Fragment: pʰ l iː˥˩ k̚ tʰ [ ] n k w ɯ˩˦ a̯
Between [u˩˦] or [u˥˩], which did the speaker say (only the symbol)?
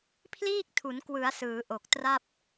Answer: u˩˦